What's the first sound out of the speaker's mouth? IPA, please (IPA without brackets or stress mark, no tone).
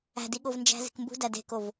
æ̤